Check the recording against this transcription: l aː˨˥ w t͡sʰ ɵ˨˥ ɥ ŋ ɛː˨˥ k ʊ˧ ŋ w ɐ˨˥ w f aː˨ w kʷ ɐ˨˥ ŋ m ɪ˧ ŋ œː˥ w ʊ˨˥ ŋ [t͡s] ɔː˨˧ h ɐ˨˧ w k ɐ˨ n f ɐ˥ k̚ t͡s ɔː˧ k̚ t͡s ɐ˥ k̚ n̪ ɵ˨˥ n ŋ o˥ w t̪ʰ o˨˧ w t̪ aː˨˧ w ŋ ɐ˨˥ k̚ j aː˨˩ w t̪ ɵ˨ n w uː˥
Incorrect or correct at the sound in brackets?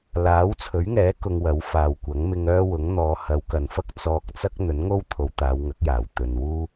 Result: incorrect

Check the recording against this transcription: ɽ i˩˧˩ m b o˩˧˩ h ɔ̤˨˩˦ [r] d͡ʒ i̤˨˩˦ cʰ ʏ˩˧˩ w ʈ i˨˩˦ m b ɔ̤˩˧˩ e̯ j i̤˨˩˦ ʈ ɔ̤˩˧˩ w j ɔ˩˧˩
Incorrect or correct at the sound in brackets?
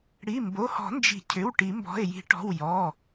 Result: incorrect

